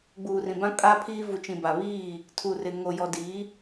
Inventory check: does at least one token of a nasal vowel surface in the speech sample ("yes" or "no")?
yes